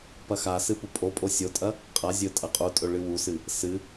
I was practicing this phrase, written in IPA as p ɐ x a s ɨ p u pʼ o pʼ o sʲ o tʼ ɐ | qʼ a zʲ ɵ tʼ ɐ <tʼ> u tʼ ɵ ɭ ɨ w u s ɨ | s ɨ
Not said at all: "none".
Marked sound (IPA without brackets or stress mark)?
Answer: qʼ